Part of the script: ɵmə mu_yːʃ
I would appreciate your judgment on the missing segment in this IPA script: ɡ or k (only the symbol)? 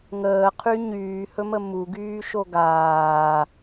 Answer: ɡ